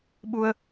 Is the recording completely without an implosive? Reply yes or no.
no